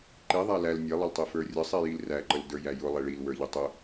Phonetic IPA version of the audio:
ǃ i ðˤ æ l æ l nʲ ɛ lˠ ə l tˤ i f ə˞ rʲ ə sˤ i j i l r æ ǃ ə l d ə˞ j æ j ʊ lˠ ɛ ɭ i l w ə˞ ʎ ə tˤ ʊ

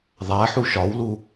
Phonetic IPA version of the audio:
ðˤ æ ħ u ʃ ɒ w l u

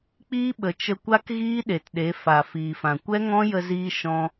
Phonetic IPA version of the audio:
k͡p iː˦ ɓ ə˨ t͡ʃ ə˧ kʷ a˦ k ɣ iː˦ ɗ e˨ t ɗ e˨˦ f a˨ f iː˨ f ã˨ kʷ ɛ˦ ŋ ɔ̃˦ j ə˧ z iː˧ ʃ ɔ̃˧

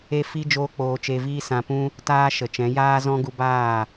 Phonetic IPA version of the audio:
e˦ f i˦ d͡ʒ oː˦ k͡p oː˧ t͡ʃ e˧ v iː˦ s ã˧ p ũ˦ | t aː˦ ʃ ə˨ t͡ʃ ɛ̃˨˦ j aː˦ z ɔ̃˦ ɡ u˧ b aː˦˨

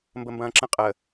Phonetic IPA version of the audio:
m b ə m b ɐ̃ː ǁ ə̃ qʼ ə

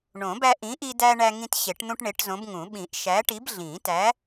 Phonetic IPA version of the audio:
ɳ õ˨˩˦ b æ˦ ʔ ĩ˨˥ ʔ i˦ d æ˦ ɳ æ˦ ŋ ĩ˦ t ɕ e˨˩˦ ʈ n̪ ũ˦ ʈ ɳ e˨˥ ʈ z õ˨˥ b ŋ ũ˨˩˦ ɓ ĩ˨˩˦ ʔ ʃ æ˨˥ ʈ i˨˥ b ɮ ĩ˨˩˦ t æ˨˥

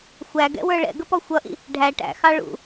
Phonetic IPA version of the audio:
xʷ æ ɡ ɛ̰ w ə˞ ɭ ɛ̰ ɡ ə p ɔ xʷ ʌ ʔ ḭ | ɖʱ æ ʈ æ̰ x ɑ ɭ ṵ

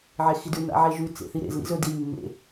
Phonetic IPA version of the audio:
ʕ e x i d ʉ n a̰ ʕ e ʒ ʉ t͡s ḛ θ i ɾ ḛ z l ḭ z ɵ d i mː ḛ

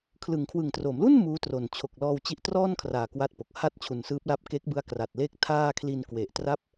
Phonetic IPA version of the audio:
kʰ l ɯ˩˦ ŋ kʰ w ɯ˨˩ ŋ t r o˩˦ m l u˥˩ n m uː˦˥ t r o˨˩ n t͡ɕʰ o˨˩ k̚ l ɔː˧ w t͡ɕ i˦˥ ʔ t r ɔː˥˩ n kʰ r aː˨˩ k w a˥˩ t̚ p o˨˩ k̚ h a˥˩ t̚ t͡ɕʰ u˨˩ n s ɯː˦˥ p̚ l a˦˥ p̚ k e˦˥ k̚ b ɯ˦˥ a̯ k r a˨˩ t̚ l e˥˩ k̚ tʰ aː˥˩ kʰ l i˧ n k w e˨˩ ʔ t r a˦˥ p̚

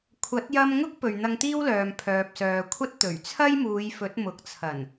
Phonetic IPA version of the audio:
kʷʰ ɐ˨˥ t̚ j ɐ˧ m ŋ ʊ˥ k̚ p ɵ˨ ɥ n̪ ɐ˧ ŋ t̪ iː˥ w l œː˨ m pʰ œː˨ p̚ s œː˨ kʷʰ ɐ˥ t̚ t̪ ɵ˨˩ ɥ t͡sʰ ɐ˥ j m uː˨˧ j f ɵ˨˥ t̚ m ʊ˨ k̚ t͡sʰ ɐ˨˩ n

